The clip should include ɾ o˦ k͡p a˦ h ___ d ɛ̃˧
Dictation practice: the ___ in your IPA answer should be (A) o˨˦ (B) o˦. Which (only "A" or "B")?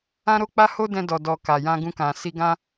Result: B